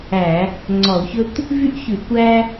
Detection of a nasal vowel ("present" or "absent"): absent